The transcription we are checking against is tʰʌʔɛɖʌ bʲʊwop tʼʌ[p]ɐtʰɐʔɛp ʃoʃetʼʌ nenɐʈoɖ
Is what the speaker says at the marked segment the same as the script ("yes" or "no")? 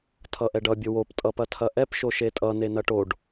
yes